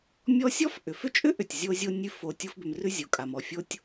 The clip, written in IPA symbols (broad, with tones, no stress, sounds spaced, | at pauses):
mʲ ɔ˦ sʲ ɔ˥ f ʔ ʏ˩ f ʏ˥ t͡ʃʼ ʏ˥ ʔ ʏ˩ tʲ zʲ o˥ zʲ o˥ nʲ ʉ˥ f o˨ tʲ o˦ f b ʏ˨ m r ʉ˥ zʲ o˩ kʼ a˩ m ɔ˨ fʲ o˥ tʲ